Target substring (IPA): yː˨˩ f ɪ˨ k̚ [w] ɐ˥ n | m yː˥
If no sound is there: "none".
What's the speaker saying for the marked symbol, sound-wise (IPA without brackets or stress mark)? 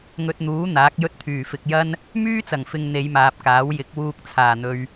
j